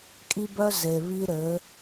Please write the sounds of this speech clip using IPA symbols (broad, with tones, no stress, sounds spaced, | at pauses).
kʼ i˦ b œ˦ z e˨ β i˦ ɾ ɘ˨˦